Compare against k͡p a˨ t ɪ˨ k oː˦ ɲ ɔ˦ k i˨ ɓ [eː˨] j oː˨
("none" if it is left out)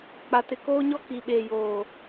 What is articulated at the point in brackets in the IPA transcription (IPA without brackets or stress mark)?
eː˨